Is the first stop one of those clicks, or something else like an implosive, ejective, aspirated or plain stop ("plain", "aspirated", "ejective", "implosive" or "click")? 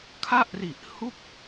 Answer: aspirated